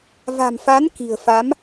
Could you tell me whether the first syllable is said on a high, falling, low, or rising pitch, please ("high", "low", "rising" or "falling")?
low